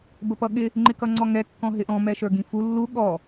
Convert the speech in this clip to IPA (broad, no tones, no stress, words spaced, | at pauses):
bəpʌɠɪ | ŋ͡ǃɪkʌŋ͡ǀɔŋɛ kːɔ̃ɦɪʔɔ̃ mɛʃə˞ɡĩfu lːu ɠɔ